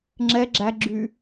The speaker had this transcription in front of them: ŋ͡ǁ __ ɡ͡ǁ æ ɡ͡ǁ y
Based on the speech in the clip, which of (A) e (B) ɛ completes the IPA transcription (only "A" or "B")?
B